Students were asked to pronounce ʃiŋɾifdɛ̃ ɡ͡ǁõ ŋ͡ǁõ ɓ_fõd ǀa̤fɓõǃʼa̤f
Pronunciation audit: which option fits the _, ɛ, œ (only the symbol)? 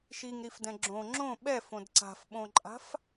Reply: ɛ